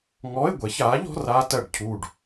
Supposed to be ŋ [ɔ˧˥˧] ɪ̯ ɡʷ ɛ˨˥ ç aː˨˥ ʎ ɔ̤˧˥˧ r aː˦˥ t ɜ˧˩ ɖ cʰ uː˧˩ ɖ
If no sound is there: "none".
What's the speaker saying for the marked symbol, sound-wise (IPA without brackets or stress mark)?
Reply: ɔ˧˥˧